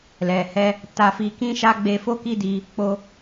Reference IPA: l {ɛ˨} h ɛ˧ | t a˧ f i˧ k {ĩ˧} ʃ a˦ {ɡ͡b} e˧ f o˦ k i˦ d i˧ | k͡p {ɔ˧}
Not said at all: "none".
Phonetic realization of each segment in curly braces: ɛ˨, ĩ˦, ɡ͡b, o˧

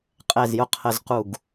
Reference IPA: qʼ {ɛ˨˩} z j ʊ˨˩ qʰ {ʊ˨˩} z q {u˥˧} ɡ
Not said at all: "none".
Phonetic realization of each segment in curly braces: ɛ˨˩, ə˨˩, u˨˩

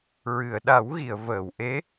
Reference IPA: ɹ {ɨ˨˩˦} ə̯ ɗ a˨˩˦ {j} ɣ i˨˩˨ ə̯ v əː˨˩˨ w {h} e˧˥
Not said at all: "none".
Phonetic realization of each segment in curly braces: ɨ˨˩˨, w, ʔ

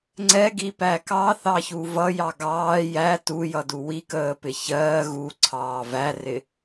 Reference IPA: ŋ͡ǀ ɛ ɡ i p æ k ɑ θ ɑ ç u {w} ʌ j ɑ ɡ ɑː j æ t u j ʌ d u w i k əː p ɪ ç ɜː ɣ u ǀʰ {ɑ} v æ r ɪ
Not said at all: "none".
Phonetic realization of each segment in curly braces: v, ɑː

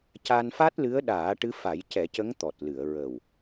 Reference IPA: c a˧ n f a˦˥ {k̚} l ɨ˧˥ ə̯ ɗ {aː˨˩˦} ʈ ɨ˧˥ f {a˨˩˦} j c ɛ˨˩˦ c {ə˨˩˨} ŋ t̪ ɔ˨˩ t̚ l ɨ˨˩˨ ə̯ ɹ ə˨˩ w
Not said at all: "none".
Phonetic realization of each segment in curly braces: t̚, aː˨˩˦, a˨˩˦, ə˧˥

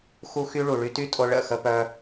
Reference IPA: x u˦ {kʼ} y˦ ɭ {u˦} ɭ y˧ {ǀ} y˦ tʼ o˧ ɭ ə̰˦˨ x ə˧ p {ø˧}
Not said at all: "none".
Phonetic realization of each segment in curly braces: x, u˨, t, œ˧

